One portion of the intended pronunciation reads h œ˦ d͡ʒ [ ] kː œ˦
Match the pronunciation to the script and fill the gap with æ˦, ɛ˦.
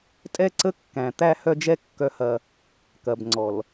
ɛ˦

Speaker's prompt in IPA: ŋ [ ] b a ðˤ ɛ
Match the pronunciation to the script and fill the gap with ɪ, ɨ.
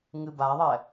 ɨ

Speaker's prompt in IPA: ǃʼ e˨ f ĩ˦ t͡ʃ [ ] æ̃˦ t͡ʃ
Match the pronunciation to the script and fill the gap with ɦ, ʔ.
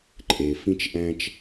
ʔ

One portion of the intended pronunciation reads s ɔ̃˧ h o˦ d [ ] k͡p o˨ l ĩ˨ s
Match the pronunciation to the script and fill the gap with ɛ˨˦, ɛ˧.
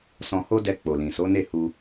ɛ˧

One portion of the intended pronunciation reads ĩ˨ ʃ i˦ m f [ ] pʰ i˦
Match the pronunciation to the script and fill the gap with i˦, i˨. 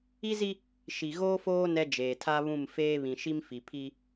i˨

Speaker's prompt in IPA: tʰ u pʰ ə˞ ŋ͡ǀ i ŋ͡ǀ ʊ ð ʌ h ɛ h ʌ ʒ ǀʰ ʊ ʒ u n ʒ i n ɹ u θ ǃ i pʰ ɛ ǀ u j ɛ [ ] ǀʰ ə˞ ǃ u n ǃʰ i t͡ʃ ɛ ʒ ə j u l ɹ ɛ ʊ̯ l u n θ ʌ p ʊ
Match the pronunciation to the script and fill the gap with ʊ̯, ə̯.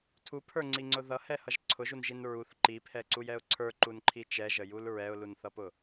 ʊ̯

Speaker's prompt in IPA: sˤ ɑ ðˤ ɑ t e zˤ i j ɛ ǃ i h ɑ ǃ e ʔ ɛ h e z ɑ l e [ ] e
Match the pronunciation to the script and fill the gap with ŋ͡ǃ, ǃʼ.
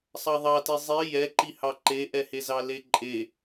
ǃʼ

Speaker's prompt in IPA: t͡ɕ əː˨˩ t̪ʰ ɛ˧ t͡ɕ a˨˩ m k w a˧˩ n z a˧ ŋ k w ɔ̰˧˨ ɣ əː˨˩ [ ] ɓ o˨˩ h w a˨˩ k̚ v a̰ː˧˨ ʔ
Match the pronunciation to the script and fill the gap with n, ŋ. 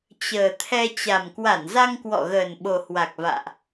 n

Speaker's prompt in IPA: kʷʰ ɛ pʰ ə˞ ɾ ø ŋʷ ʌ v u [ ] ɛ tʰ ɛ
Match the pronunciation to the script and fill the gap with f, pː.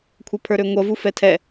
f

